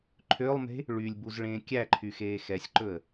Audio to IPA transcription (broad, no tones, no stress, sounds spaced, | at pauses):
ǃʰ ø lˠ m e̤ | ɭ y lʲ b u z ɭ ẽː kʲ æ ǃʰ y x eː x ɛ sʲ ǃ ɵ ə̯